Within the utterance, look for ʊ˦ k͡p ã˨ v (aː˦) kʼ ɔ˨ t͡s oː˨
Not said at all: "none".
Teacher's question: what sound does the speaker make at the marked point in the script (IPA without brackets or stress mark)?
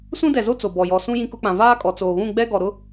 aː˦